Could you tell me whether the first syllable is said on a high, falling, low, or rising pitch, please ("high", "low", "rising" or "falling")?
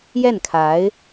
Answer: falling